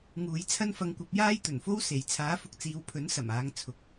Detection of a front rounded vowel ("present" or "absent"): absent